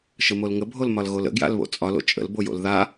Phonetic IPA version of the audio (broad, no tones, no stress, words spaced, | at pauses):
ʃəmolŋə bʱolmɒlɣolə̰ ɡja̰lβo̰t͡sʼɒl o̰t͡ʃʼə̰l bojo̰lða